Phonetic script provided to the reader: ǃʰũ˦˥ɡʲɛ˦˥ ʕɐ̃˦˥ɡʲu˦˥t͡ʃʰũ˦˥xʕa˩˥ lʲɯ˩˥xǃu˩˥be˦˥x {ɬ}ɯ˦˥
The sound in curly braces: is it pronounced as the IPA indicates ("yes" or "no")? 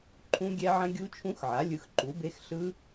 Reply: yes